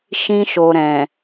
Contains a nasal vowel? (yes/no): yes